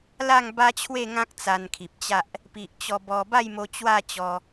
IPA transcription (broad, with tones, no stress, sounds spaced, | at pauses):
l a˥˧ ŋ b a˦ t͡ɕʰ w e˥˧ ŋ ã˦ k̚ t͡s a˧ n kʰ i˨ p̚ t͡ɕ a˦ ʔ | p i˨ ʔ t͡ɕ ɔ˧ b ɔ˧ b a˥˧ j m o˧ t͡ɕ w a˥˧ t͡ɕ ɔ˧